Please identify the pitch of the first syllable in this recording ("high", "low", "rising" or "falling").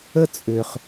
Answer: high